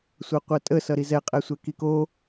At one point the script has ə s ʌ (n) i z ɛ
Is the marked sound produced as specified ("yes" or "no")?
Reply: no